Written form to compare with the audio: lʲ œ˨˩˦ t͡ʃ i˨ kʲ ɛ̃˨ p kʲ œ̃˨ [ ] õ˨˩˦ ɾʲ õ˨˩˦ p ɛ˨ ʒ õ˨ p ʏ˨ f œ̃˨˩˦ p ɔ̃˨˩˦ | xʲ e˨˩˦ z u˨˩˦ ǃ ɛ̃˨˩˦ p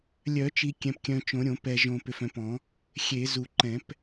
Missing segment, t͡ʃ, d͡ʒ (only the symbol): t͡ʃ